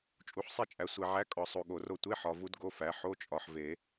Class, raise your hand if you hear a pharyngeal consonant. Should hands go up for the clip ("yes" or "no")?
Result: yes